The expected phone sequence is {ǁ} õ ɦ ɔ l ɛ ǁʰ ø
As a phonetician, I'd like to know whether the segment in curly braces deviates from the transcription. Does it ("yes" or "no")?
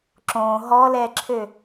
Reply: no